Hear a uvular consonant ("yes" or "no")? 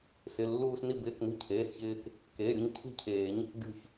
no